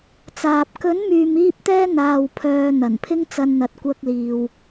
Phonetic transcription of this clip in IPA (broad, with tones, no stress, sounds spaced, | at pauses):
t͡s aː˨ p̚ k ɵ˨˥ n m yː˨ m iː˧ p̚ t̪ ɛː˧ n̪ aː˨ w pʰ œː˨ n̪ ɐ˨˩ n pʰ ɪ˥ ŋ t͡s ɐ˧ n n̪ ɐ˧ t̚ kʷ ɐ˥ k̚ l iː˨ w